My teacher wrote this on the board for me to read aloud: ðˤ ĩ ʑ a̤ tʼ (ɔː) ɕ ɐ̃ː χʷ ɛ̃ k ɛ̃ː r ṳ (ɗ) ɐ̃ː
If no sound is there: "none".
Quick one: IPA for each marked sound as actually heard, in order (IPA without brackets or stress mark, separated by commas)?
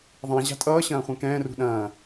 ʌː, ɗ